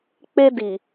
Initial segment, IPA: k͡p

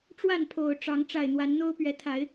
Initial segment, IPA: ʈ͡ʂ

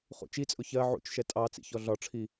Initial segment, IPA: χ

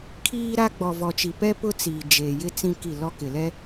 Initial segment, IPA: kʰ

